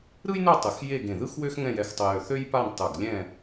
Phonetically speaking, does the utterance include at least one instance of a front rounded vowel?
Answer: yes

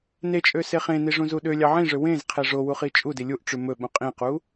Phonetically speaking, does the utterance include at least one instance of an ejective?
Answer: yes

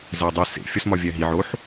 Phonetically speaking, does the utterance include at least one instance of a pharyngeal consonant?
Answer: yes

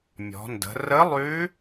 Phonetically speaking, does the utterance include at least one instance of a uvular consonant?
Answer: no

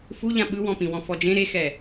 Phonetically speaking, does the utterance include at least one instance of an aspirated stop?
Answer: no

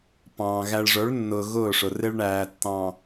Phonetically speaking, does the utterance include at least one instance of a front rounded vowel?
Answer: no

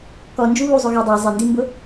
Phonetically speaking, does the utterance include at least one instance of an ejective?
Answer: no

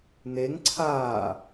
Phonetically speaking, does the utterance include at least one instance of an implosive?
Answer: no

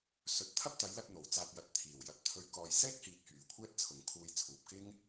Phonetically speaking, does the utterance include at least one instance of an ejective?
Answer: no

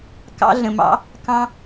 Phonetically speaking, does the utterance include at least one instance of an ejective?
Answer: no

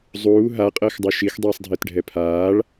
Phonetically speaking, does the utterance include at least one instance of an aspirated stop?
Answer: yes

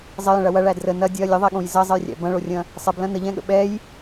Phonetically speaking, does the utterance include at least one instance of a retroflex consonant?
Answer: yes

